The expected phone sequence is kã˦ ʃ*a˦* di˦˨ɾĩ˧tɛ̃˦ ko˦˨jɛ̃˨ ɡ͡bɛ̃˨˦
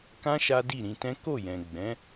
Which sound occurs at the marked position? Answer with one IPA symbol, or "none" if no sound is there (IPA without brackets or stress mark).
a˦